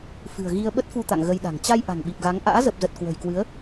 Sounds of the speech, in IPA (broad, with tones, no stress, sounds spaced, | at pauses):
f ɨ̤˨˩ ə̯ ɣ i˧ ə̯ ɓ ə˦˥ t̚ f u˧ t̪ a̰˧˨ ŋ ɣ ə˧ j ɗ a̤˨˩ ŋ t͡ɕ a˧ j ʔ a̤˨˩ ŋ ɓ i˨˩ p̚ ɣ a˨˦ ŋ ʔ a̰ː˧˥ z ə˨˩ p̚ z ə˨˩ t̚ k w ə̤˨˩ j k w ɨ˨˦ ə̯